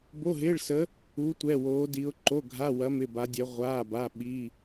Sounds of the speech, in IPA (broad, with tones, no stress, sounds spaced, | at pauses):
b o˧˥˧ ɦ ɪː˧˥˧ ɭ s ə˧˥ | u˧˥ tʷ ɛ˧˥˧ w oː˧˥ d i˧˥ ʊ̯ ǃ o˧˥˧ ɡʱ a˧˥˧ w ɐ˧˥ m ɪ˧˥˧ b a˧˥ dʲ ɛ˧˥ ʁʷ aː˧˥˧ b a˧˥˧ ɓ i˧˥˧